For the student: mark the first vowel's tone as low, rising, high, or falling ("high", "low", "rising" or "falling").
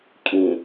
low